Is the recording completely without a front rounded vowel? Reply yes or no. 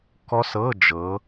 yes